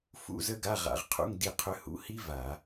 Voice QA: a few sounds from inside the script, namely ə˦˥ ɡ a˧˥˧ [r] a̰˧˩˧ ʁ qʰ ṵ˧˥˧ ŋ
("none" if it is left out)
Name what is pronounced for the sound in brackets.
ʁ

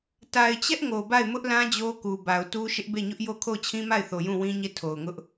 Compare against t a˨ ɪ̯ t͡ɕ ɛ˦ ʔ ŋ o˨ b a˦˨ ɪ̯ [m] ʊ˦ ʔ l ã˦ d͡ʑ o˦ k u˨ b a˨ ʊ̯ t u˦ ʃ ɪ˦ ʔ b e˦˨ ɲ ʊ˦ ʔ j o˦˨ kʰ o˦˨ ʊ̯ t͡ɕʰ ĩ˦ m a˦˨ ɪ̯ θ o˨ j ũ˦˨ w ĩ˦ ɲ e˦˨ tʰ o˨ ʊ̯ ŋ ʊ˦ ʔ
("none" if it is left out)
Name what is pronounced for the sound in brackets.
m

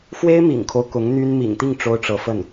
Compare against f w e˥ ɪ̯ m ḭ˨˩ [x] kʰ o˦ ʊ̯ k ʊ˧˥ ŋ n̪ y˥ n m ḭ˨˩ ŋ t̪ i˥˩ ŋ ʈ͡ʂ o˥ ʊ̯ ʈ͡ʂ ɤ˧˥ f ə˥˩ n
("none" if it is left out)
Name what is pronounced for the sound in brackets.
ŋ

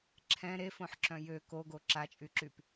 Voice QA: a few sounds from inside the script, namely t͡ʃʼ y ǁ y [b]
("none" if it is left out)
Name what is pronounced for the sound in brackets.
p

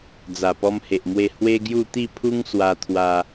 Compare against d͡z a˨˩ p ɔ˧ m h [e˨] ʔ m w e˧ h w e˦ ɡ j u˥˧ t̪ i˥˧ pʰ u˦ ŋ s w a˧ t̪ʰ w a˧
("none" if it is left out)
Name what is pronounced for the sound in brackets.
e˨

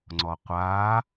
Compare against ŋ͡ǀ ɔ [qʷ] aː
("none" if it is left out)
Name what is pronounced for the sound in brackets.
qʷ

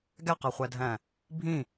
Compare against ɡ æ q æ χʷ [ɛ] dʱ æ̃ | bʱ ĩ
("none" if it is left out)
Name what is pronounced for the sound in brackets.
æ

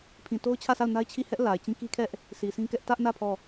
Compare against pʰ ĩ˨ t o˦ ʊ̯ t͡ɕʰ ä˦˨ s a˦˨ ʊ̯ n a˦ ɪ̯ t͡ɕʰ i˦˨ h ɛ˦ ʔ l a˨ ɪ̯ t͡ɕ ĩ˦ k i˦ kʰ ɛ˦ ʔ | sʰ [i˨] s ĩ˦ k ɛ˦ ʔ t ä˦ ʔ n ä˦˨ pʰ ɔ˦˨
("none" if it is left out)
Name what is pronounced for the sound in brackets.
i˨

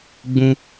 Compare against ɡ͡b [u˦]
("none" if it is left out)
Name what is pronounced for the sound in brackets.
ũ˦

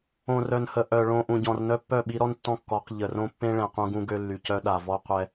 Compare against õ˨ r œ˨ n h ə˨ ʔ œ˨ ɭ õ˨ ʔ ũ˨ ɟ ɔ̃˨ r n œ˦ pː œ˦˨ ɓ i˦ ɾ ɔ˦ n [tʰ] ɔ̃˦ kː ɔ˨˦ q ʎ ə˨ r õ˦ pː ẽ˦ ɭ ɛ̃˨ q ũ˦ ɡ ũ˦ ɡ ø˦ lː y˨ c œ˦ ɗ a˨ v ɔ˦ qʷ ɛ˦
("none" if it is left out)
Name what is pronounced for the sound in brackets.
tː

